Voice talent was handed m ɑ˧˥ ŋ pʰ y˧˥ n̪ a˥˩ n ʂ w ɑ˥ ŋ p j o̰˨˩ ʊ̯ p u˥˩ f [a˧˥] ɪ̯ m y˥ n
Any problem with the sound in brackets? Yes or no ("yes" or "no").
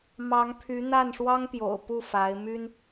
no